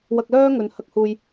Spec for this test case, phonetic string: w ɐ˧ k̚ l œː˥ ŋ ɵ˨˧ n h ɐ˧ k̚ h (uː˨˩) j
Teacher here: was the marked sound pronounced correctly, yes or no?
no